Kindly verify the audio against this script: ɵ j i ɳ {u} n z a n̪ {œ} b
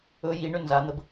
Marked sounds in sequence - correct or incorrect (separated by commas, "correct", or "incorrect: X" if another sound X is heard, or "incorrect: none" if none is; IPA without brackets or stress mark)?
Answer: incorrect: ʏ, incorrect: ə